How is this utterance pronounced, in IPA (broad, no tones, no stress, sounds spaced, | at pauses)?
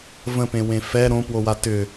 v ə̃ p ẽ w ẽ f ɛ ɾ õ p w o w a t ʏ